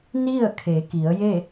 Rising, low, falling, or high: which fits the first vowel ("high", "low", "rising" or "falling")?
falling